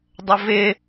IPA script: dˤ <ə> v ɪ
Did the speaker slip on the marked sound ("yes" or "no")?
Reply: no